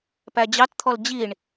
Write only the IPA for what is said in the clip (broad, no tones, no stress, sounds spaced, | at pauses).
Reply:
p æ d͡ʑ ɑ t t̪ʰ ɔ l d͡ʑ i ɳ